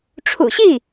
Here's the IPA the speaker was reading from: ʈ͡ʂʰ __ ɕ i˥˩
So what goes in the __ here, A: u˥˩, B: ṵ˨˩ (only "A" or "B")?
B